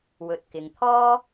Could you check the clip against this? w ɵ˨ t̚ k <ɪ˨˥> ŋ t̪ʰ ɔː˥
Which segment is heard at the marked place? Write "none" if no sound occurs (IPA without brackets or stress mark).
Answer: ɪ˨